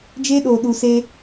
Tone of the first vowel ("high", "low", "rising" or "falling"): high